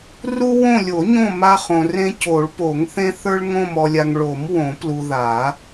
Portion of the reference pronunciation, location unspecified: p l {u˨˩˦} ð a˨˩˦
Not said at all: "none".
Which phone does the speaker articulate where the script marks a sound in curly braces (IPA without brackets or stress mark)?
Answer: u˨